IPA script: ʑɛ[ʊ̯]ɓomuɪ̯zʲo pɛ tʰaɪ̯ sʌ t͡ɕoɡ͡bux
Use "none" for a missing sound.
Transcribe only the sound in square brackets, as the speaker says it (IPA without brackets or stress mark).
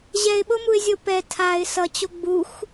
ɪ̯